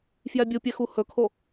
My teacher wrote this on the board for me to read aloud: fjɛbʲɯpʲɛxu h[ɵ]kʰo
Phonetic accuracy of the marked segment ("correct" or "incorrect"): correct